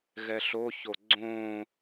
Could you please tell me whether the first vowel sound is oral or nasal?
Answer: oral